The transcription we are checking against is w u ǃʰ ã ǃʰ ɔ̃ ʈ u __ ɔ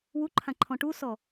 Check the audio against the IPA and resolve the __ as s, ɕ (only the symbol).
s